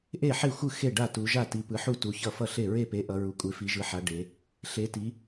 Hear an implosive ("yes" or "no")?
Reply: no